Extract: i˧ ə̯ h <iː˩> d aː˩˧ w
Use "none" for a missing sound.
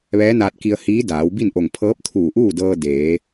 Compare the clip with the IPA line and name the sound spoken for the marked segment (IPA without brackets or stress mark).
iː˧˥